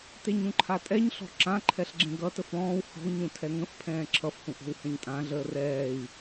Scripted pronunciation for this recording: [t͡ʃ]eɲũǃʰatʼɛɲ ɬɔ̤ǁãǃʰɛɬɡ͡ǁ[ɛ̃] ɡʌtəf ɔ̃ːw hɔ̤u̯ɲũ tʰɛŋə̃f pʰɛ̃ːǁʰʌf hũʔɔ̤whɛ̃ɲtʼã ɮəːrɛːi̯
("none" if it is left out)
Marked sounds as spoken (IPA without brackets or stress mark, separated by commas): t, ẽ